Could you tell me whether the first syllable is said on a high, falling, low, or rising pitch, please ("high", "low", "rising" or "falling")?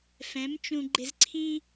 rising